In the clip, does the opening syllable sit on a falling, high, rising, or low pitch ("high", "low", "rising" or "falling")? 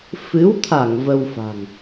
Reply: rising